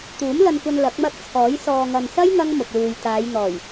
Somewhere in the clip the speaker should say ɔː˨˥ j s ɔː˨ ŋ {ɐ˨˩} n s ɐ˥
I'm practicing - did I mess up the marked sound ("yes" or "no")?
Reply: yes